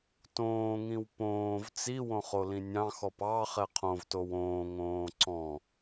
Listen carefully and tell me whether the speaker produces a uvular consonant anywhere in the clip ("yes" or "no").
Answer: yes